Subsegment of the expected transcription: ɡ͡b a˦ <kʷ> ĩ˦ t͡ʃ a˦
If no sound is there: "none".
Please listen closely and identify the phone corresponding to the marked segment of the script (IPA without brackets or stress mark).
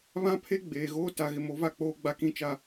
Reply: k